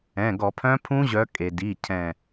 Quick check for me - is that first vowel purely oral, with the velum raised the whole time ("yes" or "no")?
no